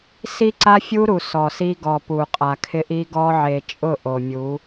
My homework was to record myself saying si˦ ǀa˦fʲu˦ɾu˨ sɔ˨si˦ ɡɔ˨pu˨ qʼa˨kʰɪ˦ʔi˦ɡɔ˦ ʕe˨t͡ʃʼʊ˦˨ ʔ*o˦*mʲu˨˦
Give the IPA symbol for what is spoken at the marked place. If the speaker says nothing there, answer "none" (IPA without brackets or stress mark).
o˨